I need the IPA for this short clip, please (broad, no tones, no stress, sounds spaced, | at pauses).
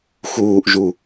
x uː ʔ ʒ u